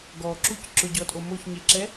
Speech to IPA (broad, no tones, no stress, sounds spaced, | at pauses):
ɡ ɔ ǁ u c ǁ ʊ ɟ ɔ tʼ o m o ç ɲ e ǁ ɛ